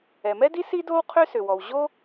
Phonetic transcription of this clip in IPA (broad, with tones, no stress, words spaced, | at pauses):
ɛ˩mɛ˥di˥ si˥do˥w qʰø˥sʏ˩wɔ˩w ʑo˥